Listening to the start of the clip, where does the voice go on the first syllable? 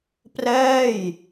falling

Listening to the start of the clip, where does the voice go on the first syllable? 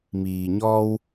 low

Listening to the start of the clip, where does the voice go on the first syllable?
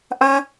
high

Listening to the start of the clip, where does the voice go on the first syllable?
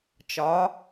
rising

